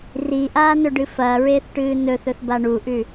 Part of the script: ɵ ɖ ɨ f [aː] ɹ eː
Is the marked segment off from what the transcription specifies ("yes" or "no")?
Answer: yes